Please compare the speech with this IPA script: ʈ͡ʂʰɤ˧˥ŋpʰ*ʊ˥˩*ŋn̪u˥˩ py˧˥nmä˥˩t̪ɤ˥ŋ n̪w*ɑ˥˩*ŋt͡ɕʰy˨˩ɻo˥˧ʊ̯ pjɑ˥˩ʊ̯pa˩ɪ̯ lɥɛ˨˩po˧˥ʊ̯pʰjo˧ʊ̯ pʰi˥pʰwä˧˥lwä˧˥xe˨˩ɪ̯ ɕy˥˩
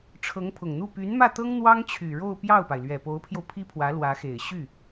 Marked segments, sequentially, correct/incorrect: incorrect: ʊ˨˩, incorrect: ɑ˥

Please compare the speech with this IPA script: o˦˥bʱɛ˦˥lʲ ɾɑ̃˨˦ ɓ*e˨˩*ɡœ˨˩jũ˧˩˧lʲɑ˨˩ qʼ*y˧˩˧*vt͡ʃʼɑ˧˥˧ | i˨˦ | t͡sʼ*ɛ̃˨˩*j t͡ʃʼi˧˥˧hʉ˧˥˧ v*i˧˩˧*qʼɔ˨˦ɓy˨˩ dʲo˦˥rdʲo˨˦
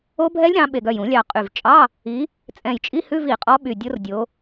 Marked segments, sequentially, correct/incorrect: correct, incorrect: y˨˩, correct, correct

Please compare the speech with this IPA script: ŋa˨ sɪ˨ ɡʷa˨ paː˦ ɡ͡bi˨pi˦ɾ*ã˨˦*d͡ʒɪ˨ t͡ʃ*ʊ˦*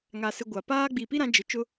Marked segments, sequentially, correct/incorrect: correct, correct

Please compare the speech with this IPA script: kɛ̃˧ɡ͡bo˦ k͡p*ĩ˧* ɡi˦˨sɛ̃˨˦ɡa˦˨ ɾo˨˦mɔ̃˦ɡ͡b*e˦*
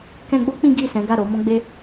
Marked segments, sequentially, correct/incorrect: incorrect: ĩ˦, correct

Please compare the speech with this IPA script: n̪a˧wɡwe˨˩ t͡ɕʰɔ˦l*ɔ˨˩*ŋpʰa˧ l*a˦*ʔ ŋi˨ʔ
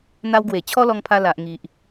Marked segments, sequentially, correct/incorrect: incorrect: ɔ˧, incorrect: a˨

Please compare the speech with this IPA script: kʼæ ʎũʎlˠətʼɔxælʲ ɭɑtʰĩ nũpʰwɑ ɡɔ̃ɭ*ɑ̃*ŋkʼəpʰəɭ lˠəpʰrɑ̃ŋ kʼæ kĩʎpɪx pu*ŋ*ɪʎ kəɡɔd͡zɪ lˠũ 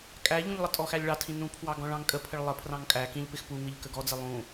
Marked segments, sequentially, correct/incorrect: correct, correct

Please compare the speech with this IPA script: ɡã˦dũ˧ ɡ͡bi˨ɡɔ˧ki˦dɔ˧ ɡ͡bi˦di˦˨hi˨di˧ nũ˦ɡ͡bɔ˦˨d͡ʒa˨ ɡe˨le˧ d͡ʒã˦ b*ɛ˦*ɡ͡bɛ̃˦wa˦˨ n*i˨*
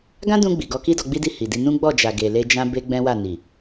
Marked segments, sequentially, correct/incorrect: incorrect: e˦, correct

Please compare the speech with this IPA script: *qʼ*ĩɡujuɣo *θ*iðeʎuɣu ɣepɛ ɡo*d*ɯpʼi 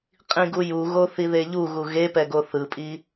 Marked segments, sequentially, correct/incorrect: correct, correct, incorrect: θ

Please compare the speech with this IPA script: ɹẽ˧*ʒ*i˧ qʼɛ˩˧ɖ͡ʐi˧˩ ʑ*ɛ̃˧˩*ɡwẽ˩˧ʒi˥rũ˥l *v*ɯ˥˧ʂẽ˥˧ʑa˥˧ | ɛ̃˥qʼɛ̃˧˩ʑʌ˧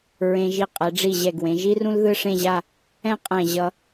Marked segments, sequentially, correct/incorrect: correct, incorrect: ɛ˧˩, incorrect: ð

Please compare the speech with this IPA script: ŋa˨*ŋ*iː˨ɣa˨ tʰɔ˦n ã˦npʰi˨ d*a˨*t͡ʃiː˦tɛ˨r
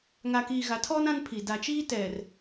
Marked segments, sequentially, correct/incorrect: incorrect: k, correct

